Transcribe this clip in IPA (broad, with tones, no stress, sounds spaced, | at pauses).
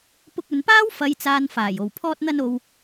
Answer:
p ʊ˧ k̚ ɵ˨ n p aː˥ w f ɐ˨˧ j t͡s aː˨ n f aː˨˩ j o˨˩ w pʰ ɔː˧ t̚ n̪ ɐ˧ n o˨ w